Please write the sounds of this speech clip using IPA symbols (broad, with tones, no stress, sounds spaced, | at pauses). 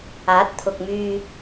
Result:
aː˨˥ t̚ t̪ʰ ʊ˨ k̚ m yː˨